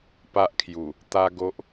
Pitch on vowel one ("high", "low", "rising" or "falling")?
high